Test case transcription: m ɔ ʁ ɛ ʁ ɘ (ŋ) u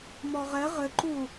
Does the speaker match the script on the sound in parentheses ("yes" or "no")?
no